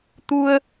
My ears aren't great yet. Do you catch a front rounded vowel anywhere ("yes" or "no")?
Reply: no